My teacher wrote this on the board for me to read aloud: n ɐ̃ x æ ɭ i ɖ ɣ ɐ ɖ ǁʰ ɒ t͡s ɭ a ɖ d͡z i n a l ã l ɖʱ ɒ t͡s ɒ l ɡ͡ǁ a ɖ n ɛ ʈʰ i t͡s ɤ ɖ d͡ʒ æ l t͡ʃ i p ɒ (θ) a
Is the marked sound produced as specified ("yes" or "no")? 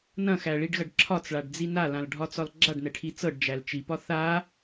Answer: yes